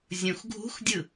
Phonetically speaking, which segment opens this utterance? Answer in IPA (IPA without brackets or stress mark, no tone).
zʲ